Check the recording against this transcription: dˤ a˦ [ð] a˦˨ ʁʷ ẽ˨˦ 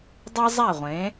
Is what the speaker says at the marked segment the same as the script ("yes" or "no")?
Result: no